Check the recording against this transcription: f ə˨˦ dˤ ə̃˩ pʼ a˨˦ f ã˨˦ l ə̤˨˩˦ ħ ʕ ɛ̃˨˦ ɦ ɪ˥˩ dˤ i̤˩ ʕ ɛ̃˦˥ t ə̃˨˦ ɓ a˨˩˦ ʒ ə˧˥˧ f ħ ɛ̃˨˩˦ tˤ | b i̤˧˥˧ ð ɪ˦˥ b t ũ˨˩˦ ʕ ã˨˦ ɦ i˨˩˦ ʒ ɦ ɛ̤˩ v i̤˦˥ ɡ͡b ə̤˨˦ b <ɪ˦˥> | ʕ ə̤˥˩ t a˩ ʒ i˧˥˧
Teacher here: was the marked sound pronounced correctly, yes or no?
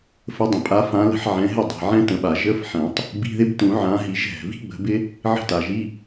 yes